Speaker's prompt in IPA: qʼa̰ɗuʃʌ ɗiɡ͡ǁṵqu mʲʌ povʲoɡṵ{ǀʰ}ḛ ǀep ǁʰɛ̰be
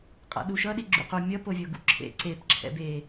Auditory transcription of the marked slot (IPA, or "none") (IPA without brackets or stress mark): ǁʰ